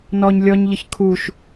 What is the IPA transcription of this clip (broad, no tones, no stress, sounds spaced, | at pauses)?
n ɔ ɲ lʲ ɔ ɲ ʎ ə ç kʰ u ʃ